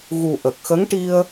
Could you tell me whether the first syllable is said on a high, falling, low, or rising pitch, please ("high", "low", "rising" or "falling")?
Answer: low